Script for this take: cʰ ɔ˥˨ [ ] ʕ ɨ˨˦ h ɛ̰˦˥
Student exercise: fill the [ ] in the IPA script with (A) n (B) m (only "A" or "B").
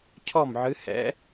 B